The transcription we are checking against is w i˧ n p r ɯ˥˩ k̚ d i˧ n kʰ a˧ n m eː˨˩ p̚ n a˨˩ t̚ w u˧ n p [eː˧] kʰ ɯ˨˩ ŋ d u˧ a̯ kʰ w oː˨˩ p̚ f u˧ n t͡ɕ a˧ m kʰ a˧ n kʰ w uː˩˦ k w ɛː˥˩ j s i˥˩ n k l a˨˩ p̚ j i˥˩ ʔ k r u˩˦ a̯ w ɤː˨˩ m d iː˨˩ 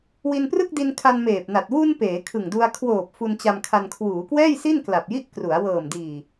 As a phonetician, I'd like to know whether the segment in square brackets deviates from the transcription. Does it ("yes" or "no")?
yes